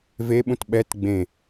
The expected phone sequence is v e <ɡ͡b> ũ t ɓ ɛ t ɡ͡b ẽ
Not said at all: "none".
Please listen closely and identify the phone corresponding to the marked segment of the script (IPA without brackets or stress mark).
ɓ